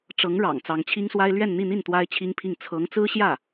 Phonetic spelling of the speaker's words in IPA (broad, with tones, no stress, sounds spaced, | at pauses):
ʈ͡ʂ ɤ˧˥ ŋ ɻ ɑ̰˨˩ ŋ t͡s ɑ˧˥ ŋ t͡ɕʰ i˥ ŋ s w a˥ ɪ̯ l ɥ ɛ˥˧ n n̪ i˥˧ n̪ i˥˩ n t̪ w a˥ ɪ̯ t͡ɕʰ i˥ ŋ pʰ i˥˩ ŋ t͡sʰ ɤ˧˥ ŋ t͡s ɹ̩˥ ɕ j ä˥˩